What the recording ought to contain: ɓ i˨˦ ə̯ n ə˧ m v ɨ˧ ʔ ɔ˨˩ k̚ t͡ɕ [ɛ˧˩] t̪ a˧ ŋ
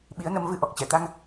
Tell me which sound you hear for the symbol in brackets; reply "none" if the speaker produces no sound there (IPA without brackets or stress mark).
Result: ɛ˧˩